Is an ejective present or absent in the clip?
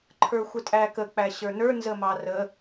present